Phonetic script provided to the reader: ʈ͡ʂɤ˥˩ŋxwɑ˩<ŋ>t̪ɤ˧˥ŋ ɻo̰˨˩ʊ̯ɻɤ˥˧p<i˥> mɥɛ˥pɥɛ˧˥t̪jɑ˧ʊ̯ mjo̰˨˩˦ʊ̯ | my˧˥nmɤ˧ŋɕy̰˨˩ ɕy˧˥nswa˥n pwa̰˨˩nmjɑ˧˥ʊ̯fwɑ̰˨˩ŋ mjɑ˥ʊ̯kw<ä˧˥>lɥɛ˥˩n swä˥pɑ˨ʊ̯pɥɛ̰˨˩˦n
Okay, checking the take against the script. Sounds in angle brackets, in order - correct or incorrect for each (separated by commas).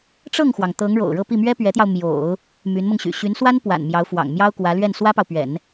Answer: correct, incorrect, correct